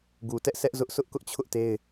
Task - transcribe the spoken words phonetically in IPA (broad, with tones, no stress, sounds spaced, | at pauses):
ɡ u˨ t ɛ˦ ʔ sʰ ɛ˦ ʔ z ʊ˦ ʔ sʰ ʊ˦ ʔ k ʊ˦ ʔ t͡ɕʰ ʊ˦ ʔ t e˦ ɪ̯